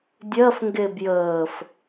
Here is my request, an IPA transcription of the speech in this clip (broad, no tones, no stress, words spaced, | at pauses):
dʲɜf ŋɡebjəːf